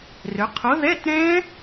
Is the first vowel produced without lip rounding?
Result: no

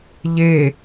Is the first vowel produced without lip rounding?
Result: yes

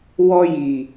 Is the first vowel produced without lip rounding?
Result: no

